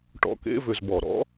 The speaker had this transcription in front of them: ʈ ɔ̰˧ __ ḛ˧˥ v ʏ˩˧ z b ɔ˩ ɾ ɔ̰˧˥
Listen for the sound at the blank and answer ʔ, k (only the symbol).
k